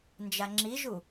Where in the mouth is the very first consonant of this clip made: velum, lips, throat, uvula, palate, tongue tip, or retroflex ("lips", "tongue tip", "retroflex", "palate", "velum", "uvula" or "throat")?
tongue tip